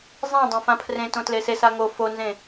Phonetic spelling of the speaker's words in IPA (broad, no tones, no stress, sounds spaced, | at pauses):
zˤ ẽ dˤ ã f ã pʰ r ẽ t õ t l e s e s a ŋ o f o n z ẽ